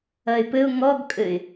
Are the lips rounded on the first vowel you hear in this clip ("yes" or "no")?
no